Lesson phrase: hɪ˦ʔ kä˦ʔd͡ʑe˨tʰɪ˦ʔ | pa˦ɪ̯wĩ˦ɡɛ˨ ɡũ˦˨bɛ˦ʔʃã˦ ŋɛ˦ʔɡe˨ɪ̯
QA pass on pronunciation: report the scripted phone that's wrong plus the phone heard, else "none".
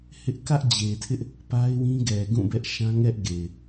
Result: none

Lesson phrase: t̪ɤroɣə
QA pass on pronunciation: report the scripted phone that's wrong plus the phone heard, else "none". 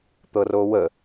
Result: ɣ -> w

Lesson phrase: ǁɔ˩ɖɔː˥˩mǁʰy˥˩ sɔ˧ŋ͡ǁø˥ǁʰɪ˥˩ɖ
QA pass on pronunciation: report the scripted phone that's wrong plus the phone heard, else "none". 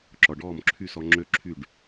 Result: ɪ˥˩ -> y˥˩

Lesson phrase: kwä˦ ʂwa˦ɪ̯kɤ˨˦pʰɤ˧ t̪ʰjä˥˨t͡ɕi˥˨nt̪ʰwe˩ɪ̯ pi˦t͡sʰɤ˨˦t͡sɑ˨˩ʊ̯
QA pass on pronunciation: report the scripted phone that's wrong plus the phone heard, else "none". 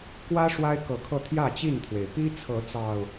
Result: pʰ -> kʰ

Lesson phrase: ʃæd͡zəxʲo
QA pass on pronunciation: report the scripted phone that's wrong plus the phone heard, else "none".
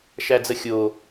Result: none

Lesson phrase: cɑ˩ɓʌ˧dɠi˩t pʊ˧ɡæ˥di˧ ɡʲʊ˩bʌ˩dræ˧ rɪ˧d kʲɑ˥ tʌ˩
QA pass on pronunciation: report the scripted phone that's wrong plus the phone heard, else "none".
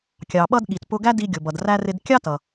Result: c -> kʲ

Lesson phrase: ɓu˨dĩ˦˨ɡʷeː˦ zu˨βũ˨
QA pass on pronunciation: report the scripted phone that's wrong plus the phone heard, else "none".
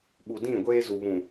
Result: none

